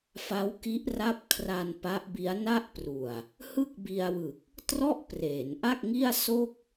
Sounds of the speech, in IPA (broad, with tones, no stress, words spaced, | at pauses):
fa˦˥wki˦˥ʔra˦˥p̚kʰra˧n pa˦˥ʔbi˦˥a̯ na˥˩ʔpru˨˩a̯ | hɯ˥˩k̚bi˧a̯wɯ˨˩k̚ | trɔ˥˩ʔpreː˩˦nʔa˥˩k̚ŋi˥˩a̯ so˥˩k̚